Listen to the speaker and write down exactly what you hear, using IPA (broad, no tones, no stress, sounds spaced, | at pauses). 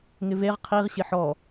ŋ ɪ v e ʁ qʰ i ʁ ɕ ɪ ħ ɔ